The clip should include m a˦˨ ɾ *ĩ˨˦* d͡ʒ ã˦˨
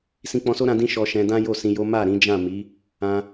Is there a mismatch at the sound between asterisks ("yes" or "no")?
no